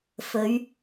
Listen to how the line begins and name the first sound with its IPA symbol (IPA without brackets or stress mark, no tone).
f